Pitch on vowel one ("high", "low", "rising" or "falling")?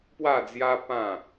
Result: falling